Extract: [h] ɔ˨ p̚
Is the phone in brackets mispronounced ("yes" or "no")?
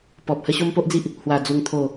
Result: yes